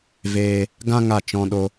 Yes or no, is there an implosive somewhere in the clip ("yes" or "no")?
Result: yes